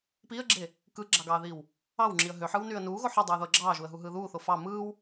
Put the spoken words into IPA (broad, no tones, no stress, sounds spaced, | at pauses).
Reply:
p iː ə̯ ɡ͡ǁ e | k ɯ ɡ͡ǁ ɑ ɡ ɑː ð iː w | ɑ w ŋ͡ǁ i ə̯ ɦ ø ħ ɯː w n yː ə̯ n uː ɣ o ħ ɯ dˤ uː ð o ə̯ ɡ͡ǁ ɑː ʒ uː ə̯ ɦ u ɦ ɯː ð uː θ o f ɑ m ɯː w